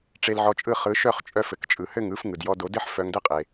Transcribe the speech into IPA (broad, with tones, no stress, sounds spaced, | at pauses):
ʈ͡ʂ e˧ l ʕ ɔ˧ t͡ʃʼ ɯ˥˩ χ ɯ˩˥ ʃ œ˥˩ χ t͡ʃʼ œ˧ f ɘ˩ k t͡ʃʼ ɯ˩ h ɘ˥˩ ŋ ɯ˩˥ f ŋ ɯ˩ d j ɔ˧ d o˩˥ d ɘ˥ ħ f œ˧ ŋ d ɘ˥ qʼ e˩